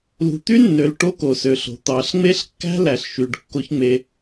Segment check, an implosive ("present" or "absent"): absent